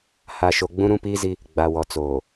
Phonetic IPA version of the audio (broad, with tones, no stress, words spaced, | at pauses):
ha˨ʃo˨ ɡ͡bũ˦ɾũ˦piː˦zi˦ | ɡ͡ba˨wɔ˨t͡soː˨